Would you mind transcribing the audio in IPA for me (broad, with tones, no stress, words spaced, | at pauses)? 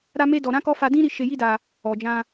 ɾa˧ me˦dɔ˧ɾã˦kɔ˦ fa˧dĩ˦ɾi˦˨ ʃe˧ji˦da˧ | ɔ˨d͡ʒã˧